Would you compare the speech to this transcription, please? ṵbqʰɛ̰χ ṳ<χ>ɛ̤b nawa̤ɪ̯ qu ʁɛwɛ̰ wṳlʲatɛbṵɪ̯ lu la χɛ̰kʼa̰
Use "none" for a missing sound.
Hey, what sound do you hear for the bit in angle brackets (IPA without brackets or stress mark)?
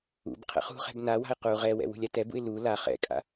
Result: χ